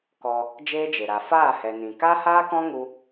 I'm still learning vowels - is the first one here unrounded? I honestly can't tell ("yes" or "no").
no